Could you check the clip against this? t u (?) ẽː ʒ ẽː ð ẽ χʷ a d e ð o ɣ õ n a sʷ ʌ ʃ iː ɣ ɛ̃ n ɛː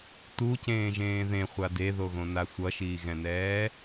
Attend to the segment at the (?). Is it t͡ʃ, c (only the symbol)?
c